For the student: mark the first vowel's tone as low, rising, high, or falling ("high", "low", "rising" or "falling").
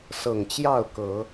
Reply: low